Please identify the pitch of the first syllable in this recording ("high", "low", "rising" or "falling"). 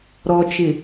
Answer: low